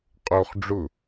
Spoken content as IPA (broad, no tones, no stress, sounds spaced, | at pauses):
qʼ o χ ɖ͡ʐ ʊ